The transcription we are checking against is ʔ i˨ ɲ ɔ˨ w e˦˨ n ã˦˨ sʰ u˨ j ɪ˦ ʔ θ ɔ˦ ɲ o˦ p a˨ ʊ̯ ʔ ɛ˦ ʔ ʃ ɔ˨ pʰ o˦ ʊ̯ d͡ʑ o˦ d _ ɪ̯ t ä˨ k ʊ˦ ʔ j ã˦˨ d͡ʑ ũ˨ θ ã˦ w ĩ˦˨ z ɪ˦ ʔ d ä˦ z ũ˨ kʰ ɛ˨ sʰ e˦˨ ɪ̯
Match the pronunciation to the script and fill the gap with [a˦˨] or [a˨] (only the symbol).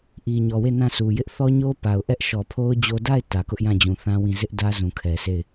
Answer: a˦˨